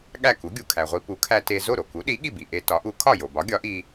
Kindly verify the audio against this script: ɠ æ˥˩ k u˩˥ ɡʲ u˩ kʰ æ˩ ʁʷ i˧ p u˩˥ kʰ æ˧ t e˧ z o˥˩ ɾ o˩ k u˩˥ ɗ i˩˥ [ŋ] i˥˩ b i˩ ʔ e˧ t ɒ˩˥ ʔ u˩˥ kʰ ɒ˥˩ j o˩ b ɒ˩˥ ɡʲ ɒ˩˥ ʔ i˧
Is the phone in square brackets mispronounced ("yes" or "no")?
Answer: yes